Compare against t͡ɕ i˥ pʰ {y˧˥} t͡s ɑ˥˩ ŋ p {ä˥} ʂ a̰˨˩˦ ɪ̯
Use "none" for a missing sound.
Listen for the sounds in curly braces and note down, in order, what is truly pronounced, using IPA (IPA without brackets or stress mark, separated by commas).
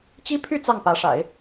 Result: y˥˧, ä˧˥